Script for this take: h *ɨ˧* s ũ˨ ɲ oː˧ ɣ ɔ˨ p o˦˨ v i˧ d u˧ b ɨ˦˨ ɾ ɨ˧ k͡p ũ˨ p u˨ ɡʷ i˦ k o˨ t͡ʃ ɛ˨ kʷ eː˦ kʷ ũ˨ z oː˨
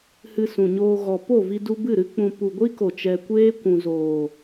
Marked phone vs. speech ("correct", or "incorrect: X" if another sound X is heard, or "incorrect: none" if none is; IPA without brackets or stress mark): correct